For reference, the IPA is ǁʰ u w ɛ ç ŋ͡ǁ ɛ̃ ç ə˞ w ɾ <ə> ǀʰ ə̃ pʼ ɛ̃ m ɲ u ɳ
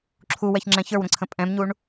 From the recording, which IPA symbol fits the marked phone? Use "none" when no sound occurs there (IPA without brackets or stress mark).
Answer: ə̃